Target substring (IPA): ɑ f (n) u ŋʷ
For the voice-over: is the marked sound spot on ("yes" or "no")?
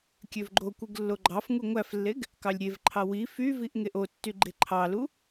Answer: no